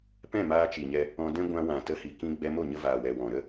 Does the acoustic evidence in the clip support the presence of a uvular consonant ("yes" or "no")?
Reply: no